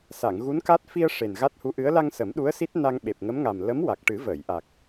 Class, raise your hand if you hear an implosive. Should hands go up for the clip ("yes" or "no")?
yes